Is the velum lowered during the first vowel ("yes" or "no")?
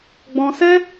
yes